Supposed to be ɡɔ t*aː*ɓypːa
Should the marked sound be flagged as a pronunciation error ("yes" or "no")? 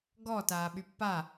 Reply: no